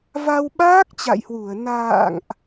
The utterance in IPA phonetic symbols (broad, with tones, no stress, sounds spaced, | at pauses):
v a˧ w ɓ aː˦˥ k̚ t͡ɕ a̰˧˨ j h w u˧˩ ə̯ n a̰ː˧˨ ŋ ʔ